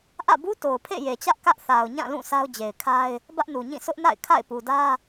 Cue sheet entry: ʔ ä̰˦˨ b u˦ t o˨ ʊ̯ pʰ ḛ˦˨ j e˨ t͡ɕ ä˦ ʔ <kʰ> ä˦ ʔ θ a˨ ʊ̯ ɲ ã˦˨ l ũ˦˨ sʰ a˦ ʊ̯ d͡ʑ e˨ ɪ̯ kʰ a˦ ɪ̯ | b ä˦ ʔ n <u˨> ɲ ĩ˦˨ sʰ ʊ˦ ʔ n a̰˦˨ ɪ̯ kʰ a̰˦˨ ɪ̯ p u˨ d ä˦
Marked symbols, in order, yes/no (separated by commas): no, yes